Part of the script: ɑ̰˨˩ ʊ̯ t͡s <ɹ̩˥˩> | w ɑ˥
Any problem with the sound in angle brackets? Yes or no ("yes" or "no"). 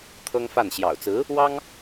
yes